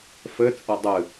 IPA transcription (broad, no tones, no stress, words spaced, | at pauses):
fɘt͡sʼɐ dˤɨ